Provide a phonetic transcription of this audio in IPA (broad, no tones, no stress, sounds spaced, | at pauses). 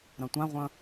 ɾ ɐ̃ tʷ ã ʁʷ ɐ̃